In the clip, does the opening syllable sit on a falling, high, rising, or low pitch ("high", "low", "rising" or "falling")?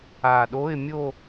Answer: low